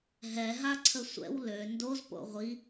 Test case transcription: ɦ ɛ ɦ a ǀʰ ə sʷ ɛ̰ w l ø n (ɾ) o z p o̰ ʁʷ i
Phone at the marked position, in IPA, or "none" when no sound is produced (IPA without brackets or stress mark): d